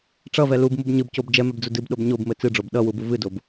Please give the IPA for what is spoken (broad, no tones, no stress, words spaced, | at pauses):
ʈ͡ʂʌvɛ lubmub ɲɨbcob d͡ʒɛmɛbd͡zu dɨbɗob ɲobmɘ t͡sɨɖ͡ʐob ɗʌwubu vɨdob